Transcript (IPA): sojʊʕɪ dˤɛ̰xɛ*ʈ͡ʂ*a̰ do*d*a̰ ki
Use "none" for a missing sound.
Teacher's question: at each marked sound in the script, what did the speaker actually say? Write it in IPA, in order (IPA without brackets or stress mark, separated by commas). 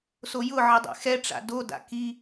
ʈ͡ʂ, d